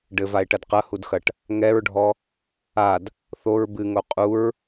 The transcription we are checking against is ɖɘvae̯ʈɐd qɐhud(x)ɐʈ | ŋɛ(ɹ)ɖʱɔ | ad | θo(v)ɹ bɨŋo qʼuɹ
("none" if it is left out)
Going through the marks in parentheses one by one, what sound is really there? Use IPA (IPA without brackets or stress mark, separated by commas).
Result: x, ɹ, none